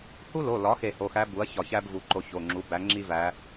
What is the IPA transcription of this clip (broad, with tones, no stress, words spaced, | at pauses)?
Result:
hu˥lo˩˧˩lɒ˩˥ xe˧˩ho˩˧˩xæ˧˥ bu˩˥ɐ̯ çɒ˧˩çæ˥b vu˩˥ǃo˧ ço˩˧˩ŋ͡ǁu˩˥ bæ˩˥ ŋ͡ǁi˥væ˧˥